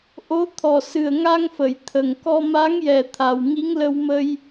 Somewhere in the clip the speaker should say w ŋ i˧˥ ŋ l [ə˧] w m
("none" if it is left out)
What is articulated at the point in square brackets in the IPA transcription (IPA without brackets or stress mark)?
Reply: ə˧